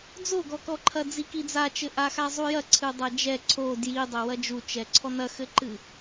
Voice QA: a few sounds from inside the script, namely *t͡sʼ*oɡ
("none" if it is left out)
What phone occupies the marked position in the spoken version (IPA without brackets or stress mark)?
d͡z